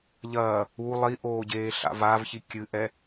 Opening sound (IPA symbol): ʎ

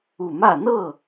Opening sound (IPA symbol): u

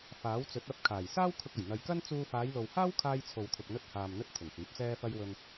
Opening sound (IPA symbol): f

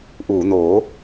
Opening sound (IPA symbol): ʔ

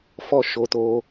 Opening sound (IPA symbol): f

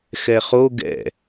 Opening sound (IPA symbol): x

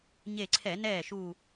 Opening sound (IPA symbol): ɲ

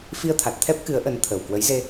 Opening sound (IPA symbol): f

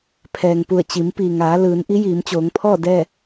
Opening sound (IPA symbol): pʰ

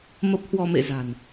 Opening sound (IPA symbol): m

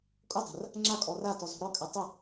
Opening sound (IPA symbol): kʼ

